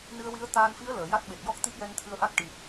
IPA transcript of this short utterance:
n ɨ˧ ə̯ w i˧˥ ə̯ t̪ aː˧ n f i˧˥ ə̯ l əː˨˩˨ j a˦˥ t̚ ɓ e˨˩ t̚ j ɔ˦˥ k̚ t̪ i˦˥ p̚ j ɛ˧ n t̪ʰ ɨ˧ ə̯ ʔ a˦˥ k̚ ʈ i˨˩ k̚

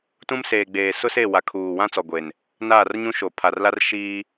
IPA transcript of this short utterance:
t ũ˦ m s eː˨ ɡ͡b eː˨ s ʊ˦ s e˦˨ w a˨ kʰ uː˨ w ã˦ t͡s ɔ˨ ɡʷ e˨ n | n aː˦˨ r ɲ ũ˦ ʃ o˨ pʰ a˨ r l a˦ r ʃ iː˦

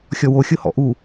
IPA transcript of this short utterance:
xʲ ɔ w o xʲ ʊ h ɔ̰ ʔ u

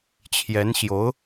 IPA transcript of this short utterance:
t͡ɕʰ j ɛ˧˥ n ɕ j o˧˥ ʊ̯

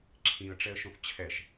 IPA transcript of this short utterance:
ǁʰ ĩ ə̯ ʈ͡ʂ ɛ ə̯ ʃ õ θ t͡ɕʰ ɛ ʃ

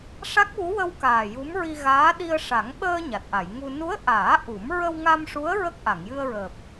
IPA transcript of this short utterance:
ʂ a˦˥ k̚ w u˧˥ w ə˧ w k aː˨˩ j u˧˥ m ɹ i˧ ɣ aː˧˥ ɗ i˧ ə̯ ʂ a˨˩˦ ŋ ɓ əː˧ ɲ a˨˩ t̚ ʔ a˨˩˨ j ŋ u˧ n u˧˥ ə̯ ʔ aː˨˩˦ ʔ u˨˩˦ m ɹ ə˧ w ŋ a˧ m ʂ u˧˥ ə̯ ɹ ə˦˥ k̚ ʔ a˨˩˨ ŋ j ɨ˧ ə̯ ɹ əː˨˩ p̚

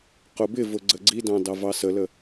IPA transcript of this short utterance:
q ʊ b ɪ v ʊ ɡ͡ǀ ə ɡ͡ǀ i d ɑ̃ d ɑ v ɑ s ə l ə

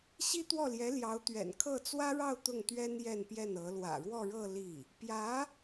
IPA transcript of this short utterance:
ɕ i˥ t̪ w ɔ˥˩ l j ɛ˧˥ l j ɑ˧˥ ʊ̯ t̪ ɥ ɛ̰˨˩ n kʰ ɤ˥˩ t͡s w ä˥ ɻ ɑ˥˧ ʊ̯ t̪ ʊ˥˩ ŋ t̪ ɥ ɛ˥ n j ɛ˥˧ n p j ɛ˥˩ n ɤ˧˥ l w ä̰˨˩ ɻ w ɔ˥˧ ɻ ɤ˥˧ l i˥˩ | p j ä˧˥

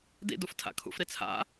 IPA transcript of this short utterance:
d ḭ d u f tʰ a̰ kʰ ṵ f ɾ i t͡sʰ a̰

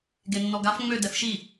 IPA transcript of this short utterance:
ɡ e nː ɔ ɡ a f ŋ͡m ø d ɛ f ʃ i

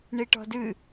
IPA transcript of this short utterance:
ɳ i ʈ ɔ̤ d ɨ

